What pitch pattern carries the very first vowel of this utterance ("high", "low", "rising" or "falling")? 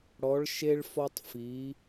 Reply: rising